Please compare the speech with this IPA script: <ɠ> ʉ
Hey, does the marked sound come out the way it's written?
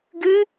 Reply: no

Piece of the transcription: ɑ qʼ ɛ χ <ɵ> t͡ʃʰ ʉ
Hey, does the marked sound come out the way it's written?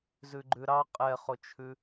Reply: no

